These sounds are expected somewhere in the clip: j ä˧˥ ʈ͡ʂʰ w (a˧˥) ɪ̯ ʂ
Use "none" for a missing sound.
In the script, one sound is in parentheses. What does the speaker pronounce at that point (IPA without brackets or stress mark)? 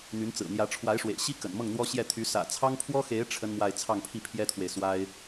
a˧˥